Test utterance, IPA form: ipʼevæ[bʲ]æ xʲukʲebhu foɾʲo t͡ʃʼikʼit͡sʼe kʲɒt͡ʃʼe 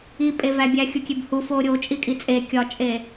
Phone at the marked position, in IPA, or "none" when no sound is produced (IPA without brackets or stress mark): bʲ